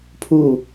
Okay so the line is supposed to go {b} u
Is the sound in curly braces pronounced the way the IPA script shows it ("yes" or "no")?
no